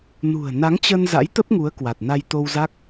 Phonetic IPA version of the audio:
n ṳ˨˩ ə̯ n a˨˦ ŋ t͡ɕ ə˧ n z a̰˧˥ j t̪ ə˦˥ p̚ ŋ u˨˦ ə̯ k w a˨˩ t̚ n a˧ j t̪ o˧ w z a˦˥ k̚

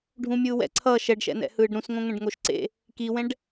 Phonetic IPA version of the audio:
ɖʱ ũ mʲ ɯː w ɛ̰ ǀʰ ʌː ʃ ɛ ɖ ʃ ɛ̰ n ɛ̰ h ɯː ɖ ɾ ũ s ŋ õ ŋ ɛ̃ ɖ ŋ o ʃ ǀ ḛ | k i w ɛ̃ ɖ

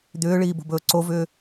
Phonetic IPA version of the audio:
d̪ ʏː ɭ iː b o̤ b ɵː ǀ o v ʏː

